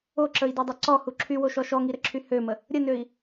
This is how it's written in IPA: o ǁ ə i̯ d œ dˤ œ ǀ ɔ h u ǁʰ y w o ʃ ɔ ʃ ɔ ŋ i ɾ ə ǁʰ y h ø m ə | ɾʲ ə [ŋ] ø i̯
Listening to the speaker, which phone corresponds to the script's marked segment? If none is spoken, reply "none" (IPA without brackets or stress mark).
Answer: n